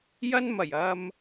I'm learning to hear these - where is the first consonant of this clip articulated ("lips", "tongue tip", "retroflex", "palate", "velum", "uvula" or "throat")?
palate